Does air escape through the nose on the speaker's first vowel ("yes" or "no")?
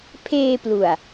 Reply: no